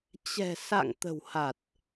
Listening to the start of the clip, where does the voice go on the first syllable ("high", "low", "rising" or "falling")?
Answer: low